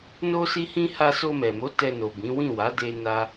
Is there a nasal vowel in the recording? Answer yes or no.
yes